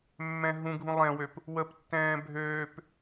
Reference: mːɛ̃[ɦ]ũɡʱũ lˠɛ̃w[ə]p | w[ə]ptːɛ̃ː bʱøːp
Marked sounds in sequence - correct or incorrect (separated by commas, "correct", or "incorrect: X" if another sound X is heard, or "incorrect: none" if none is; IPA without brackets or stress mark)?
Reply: correct, incorrect: ø, correct